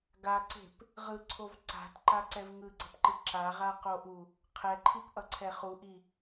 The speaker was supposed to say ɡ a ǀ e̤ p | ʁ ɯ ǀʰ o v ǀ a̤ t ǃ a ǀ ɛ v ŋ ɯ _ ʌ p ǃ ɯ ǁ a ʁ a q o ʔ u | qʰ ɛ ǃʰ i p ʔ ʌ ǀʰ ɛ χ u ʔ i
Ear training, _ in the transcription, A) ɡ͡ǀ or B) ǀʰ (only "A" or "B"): A